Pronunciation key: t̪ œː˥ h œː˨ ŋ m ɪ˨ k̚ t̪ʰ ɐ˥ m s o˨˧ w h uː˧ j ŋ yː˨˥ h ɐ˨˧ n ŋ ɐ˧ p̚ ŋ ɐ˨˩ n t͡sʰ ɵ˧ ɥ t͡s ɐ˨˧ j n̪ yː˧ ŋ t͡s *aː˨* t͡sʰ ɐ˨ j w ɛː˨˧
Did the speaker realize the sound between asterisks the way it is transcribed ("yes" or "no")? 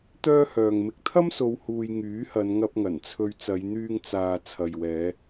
yes